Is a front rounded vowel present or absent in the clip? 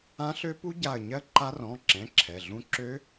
present